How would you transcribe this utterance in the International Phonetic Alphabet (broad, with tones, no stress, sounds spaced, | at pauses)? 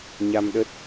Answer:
ɲ a˧ m ɗ ə˦˥ t̚